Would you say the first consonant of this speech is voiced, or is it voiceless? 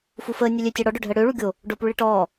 voiceless